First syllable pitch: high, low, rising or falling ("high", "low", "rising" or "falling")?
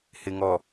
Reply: low